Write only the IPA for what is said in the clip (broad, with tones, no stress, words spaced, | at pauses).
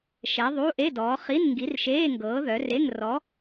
ʃɛ˨˥ðˤuː˧˥˧ʔe˧˥˧dɔː˨˥ χi˧˥˧nŋɡi˨˥rʃeː˧˥˧ ŋɡɤː˨˥ðœ˨˥re˧˥˧ŋ rɔ˨˥